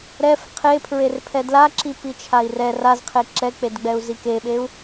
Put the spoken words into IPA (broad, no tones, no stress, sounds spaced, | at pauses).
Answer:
ɾ ɛ f qʰ e pʰ ɹ e r pʰ ɛ d l a ǁ i p i t͡ʃʰ a i̯ r ɛ r a z qʰ e ǁ ɛ k͡p e d ɡ͡b ɛ u̯ z i k e ɓ e u̯